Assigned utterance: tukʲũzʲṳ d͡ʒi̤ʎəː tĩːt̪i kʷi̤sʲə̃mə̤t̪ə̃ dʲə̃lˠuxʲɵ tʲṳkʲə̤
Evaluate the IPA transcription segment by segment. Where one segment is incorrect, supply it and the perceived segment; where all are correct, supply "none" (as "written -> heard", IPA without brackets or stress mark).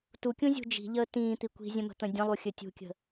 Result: sʲ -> zʲ